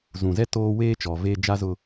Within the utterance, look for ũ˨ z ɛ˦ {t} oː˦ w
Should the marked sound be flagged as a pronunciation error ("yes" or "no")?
no